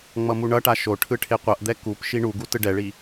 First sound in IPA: ŋ͡m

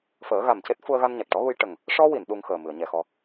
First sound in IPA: f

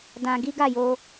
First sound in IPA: d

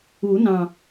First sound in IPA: u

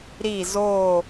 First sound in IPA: ɾ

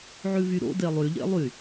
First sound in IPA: ʕ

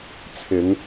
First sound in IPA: t͡sʰ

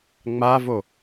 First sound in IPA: ŋ͡m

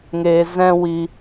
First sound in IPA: ŋ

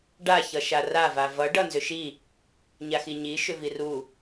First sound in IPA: ɖ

